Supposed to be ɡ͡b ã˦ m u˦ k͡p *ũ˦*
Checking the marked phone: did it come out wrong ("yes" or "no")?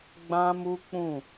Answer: yes